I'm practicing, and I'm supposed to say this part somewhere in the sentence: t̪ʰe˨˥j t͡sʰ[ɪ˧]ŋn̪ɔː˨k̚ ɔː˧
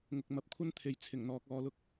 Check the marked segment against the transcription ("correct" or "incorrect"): incorrect